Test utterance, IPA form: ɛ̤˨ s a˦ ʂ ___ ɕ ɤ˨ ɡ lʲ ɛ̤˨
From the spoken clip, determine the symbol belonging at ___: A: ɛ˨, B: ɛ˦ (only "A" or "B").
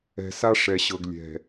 A